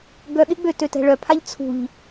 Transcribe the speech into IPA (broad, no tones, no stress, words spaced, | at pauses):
ɡœɠɪɡ͡bø tøtɛ̤ɭœpʰaʎ t͡sʰṳʎ